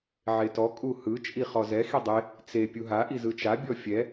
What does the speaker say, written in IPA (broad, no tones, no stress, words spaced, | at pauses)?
ʕetɔ kʼuhɯ t͡ʃʼiχɔzɛ xidˤe | t͡se pʲuɦa ʔizɯt͡ʃa bʲɔfʲɛ